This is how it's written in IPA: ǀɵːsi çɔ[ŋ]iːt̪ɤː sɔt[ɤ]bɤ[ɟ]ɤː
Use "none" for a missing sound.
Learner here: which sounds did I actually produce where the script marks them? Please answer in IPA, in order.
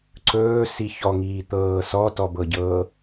ŋ, ɔ, ɟ

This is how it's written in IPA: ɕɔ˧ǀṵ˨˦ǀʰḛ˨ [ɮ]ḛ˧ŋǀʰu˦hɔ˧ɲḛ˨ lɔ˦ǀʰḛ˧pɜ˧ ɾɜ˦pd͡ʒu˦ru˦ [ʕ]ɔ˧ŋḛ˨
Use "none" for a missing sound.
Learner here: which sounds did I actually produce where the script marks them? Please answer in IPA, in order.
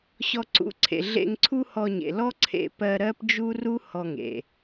ɮ, h

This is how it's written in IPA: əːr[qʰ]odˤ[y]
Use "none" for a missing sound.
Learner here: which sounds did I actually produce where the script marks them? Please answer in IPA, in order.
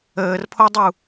pʰ, u

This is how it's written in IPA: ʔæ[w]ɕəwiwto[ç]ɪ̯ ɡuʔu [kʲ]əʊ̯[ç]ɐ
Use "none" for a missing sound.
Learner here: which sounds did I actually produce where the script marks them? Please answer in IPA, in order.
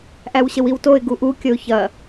w, none, kʲ, ç

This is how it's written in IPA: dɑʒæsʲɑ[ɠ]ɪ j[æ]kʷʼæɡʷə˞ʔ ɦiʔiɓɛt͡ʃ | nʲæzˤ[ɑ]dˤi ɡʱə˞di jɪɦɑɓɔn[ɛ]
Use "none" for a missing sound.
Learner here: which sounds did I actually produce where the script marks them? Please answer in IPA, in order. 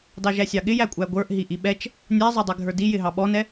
ɠ, æ, ɑ, ɛ

